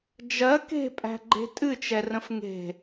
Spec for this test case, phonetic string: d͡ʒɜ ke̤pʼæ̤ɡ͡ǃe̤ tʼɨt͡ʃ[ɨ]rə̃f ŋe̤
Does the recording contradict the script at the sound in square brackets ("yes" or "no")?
yes